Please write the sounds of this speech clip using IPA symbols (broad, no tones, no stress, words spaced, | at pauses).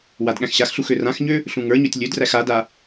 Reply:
wadɠæ̃xɕaxɬux ørãxɲø | ɬũŋə˞ɲøtʲ lʲødræx ada